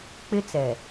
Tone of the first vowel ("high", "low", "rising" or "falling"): high